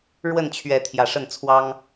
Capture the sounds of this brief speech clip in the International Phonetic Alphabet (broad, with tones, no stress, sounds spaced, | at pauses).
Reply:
ɻ w ə˥˨ n t͡ɕʰ ɥ ɛ˨˦ t̪ʰ j ä˨˩ ʂ ə˥˨ n t͡sʰ w ɑ˦ ŋ